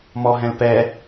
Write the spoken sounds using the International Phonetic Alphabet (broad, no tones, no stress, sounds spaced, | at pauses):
m ɔ ɦ ɛ̃ l p ɛ